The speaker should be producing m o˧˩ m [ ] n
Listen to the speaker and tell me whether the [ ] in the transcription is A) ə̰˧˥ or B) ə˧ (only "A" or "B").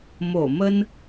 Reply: B